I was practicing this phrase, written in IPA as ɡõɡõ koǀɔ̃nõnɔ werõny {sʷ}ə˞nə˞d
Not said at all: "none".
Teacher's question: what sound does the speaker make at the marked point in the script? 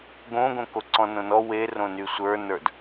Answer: sʷ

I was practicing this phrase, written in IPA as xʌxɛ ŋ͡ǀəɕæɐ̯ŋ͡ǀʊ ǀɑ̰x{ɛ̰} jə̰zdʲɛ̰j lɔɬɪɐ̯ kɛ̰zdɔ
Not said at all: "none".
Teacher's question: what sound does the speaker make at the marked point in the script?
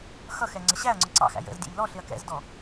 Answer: æ̰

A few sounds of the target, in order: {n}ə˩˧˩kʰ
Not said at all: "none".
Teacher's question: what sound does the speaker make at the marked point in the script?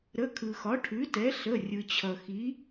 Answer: ɾ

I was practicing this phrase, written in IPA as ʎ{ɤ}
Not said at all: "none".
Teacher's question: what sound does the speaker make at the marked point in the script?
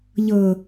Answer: ɤ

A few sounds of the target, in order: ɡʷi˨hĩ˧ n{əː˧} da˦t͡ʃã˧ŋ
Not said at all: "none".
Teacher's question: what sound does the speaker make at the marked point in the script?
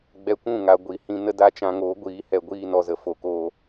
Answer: ə˧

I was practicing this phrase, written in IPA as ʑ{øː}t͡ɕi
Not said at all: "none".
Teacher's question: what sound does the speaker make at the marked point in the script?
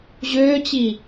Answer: øː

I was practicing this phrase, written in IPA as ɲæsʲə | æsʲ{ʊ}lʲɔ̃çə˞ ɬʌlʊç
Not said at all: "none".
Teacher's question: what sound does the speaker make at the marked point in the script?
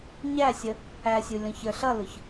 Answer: u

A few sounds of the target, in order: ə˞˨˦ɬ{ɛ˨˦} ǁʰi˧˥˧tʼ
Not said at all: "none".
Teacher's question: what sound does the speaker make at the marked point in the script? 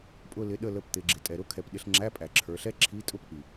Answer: ɛ˥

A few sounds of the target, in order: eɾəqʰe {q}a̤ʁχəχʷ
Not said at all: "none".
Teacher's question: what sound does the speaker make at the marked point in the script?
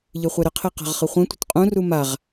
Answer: q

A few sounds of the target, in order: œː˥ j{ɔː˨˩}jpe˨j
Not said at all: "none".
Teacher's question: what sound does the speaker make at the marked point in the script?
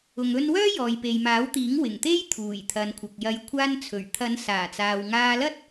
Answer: ɔː˨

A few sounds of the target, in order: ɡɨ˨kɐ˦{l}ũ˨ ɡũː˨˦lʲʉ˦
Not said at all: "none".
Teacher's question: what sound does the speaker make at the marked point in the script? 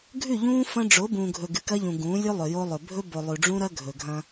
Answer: ʎ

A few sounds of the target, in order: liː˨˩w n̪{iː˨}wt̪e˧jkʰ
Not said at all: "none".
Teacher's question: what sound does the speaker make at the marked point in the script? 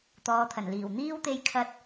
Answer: iː˥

